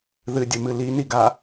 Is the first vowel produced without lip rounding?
yes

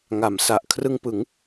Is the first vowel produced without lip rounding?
yes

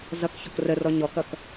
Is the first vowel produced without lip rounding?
yes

